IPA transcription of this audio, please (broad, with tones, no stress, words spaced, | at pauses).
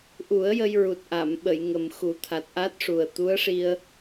ʔu˨˩˦ə̯ jə˧jɹu˨˩t̚ʔa˨˩˨mɓə˨˩˨j ŋə˨˩m xu˨˩˦t̪ʰa˨˩t̚ʔa˦˥t̚ʂu˨˩ə̯ t̪u˧˥ə̯ʂi˧ə̯